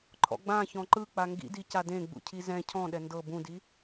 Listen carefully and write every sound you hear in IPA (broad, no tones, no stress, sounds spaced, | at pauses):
ǃʰ ɔ̰ ɡ͡b ã ç ɔ̃ ǃ ɯ k͡p a ŋ ɡ ḭ d i c a d ẽ ɡ͡b ṵ cʰ i z ɛ̃ cʰ ɔ̃ ɗ ɛ n d ɤ b ũ d i